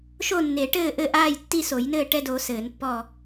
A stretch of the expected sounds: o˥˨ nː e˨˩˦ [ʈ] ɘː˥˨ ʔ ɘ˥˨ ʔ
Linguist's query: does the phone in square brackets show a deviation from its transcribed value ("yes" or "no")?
no